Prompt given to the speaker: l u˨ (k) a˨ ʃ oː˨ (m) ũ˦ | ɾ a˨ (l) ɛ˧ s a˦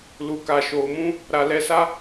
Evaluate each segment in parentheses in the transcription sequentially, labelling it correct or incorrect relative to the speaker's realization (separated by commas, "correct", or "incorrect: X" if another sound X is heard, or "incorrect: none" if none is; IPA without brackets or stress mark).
correct, correct, correct